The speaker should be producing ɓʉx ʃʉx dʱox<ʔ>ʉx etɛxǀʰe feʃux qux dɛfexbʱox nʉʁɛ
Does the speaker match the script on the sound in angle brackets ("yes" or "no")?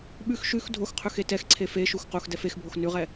no